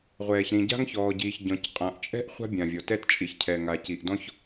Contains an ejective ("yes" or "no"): yes